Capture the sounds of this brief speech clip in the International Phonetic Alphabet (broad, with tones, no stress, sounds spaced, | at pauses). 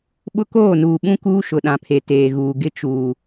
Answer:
ɓ ʊ˦ k oː˦˨ n uː˨ ɓ ũ˦ k uː˦ ʃ ʊ˨ ɗ ã˨ pʰ e˨ t eː˨ ɣ uː˨ ɡ ɪ˦ t͡ʃ uː˨